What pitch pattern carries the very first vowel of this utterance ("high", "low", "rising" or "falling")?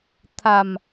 low